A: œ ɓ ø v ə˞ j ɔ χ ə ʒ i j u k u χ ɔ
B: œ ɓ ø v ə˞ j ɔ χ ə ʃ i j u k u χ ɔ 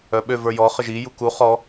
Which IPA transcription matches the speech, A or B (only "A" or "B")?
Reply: A